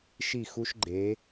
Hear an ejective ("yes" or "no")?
no